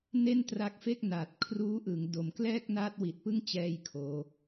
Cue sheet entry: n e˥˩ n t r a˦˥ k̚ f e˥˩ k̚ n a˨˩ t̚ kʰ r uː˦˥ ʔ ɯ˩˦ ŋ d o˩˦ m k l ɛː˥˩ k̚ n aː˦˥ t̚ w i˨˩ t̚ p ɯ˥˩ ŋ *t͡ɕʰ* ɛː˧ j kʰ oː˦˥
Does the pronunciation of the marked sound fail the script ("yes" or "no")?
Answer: yes